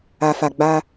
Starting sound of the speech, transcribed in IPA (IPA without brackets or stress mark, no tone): a